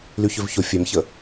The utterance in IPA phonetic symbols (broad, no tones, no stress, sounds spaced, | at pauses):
l y ç ø v ç o fʲ ɛ m ç ə